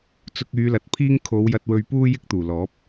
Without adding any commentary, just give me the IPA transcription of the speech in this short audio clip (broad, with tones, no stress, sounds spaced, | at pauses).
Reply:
t͡s ʊ˧ k̚ yː˨˧ l ɐ˨ t̚ pʰ iː˥ ŋ kʰ o˨˧ w j ɐ˧ t̚ w ɵ˧ ɥ p uː˥ j ɪ˥ k̚ t̪ uː˨˩ l ɔː˨˥ p̚